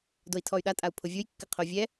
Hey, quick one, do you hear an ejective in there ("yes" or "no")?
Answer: yes